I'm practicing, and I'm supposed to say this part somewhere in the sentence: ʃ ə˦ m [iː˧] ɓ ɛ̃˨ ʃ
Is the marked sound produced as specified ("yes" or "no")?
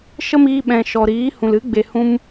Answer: yes